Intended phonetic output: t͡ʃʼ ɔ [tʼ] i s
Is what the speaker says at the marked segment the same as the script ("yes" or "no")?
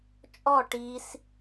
no